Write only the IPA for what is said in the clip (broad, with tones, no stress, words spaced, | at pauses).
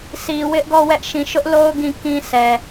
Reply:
sʰi˨wɪ˦ʔɡɔ˦˨ wɛ˦ʔʃĩ˨ ʃʊ˦ʔlo˦ʊ̯ ɡĩ˦˨ kĩ˦sʰɛ˨